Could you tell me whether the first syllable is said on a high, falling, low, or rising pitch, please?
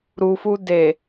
low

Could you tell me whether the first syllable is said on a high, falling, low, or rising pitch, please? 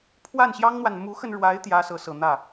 falling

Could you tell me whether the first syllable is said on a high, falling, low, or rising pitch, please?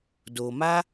low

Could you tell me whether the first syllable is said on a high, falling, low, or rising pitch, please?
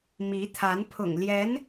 rising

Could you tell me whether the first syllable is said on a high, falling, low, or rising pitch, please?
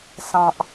low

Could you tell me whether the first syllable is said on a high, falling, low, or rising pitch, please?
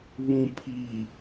low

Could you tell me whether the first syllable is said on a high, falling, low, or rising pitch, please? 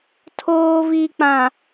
low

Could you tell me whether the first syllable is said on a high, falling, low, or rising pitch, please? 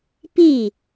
falling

